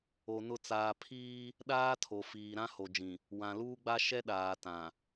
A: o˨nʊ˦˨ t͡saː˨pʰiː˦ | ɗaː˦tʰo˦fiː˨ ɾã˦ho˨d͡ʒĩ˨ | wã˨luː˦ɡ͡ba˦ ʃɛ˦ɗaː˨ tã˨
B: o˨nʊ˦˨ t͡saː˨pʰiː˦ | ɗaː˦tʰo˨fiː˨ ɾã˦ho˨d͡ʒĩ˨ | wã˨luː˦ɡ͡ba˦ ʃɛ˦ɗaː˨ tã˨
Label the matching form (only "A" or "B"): B